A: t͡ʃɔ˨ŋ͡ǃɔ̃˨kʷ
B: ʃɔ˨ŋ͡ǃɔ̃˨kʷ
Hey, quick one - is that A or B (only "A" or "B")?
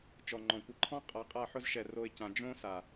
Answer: A